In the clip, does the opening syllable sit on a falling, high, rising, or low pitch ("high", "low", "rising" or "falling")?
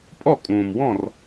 falling